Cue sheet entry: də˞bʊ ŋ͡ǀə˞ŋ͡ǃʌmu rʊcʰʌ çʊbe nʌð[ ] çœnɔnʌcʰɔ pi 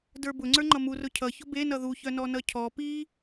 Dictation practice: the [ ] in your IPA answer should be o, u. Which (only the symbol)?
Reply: u